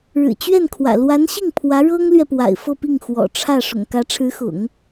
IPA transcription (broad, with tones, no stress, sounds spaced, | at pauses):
ɻ ɻ̩˨˩ t͡ɕ ɥ ɛ˥˩ n kʰ w ä̰˨˩ l w a˧˥ n ɕ i˥˩ ŋ pʰ w ä˧˥ ɻ ɤ˥ ŋ l ɥ ɛ˨ p w a̰˨˩ ɪ̯ f ɤ˥˧ p i˥˩ ŋ x w ɔ̰˨˩ ʈ͡ʂʰ ä˥˩ ʂ ʊ̰˨˩ ŋ k ä˧˥ ʈ͡ʂʰ ɻ̩˧˥ x ʊ̰˨˩˦ ŋ